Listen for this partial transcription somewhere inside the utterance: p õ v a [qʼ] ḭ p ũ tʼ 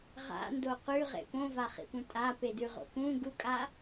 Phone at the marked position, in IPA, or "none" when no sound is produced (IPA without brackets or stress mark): χ